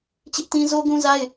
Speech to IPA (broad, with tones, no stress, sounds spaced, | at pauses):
t͡ɕ ɪ˦ ʔ t ĩ˦ z o˦ ɡ ũ˦ z a˦ ɪ̯